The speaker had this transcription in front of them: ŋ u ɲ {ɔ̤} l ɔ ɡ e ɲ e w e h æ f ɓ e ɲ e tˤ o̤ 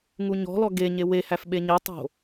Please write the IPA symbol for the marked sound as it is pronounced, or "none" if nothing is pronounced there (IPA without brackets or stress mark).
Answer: ɔ̤